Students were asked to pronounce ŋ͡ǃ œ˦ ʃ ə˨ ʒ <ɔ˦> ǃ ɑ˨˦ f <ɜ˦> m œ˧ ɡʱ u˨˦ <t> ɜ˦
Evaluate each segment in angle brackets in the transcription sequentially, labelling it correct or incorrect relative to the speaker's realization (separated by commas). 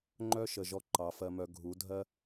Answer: correct, incorrect, incorrect